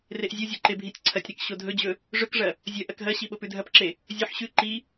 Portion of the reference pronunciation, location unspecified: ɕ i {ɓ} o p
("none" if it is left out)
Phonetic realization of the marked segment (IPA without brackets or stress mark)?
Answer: ɓ